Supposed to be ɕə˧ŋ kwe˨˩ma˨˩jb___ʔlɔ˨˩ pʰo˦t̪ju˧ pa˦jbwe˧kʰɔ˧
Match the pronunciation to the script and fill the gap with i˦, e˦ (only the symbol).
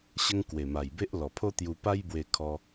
e˦